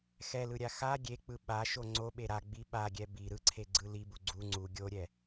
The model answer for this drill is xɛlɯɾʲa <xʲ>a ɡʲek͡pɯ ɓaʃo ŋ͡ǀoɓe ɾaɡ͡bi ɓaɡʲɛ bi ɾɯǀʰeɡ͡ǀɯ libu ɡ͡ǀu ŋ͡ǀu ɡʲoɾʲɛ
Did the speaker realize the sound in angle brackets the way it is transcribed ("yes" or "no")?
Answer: no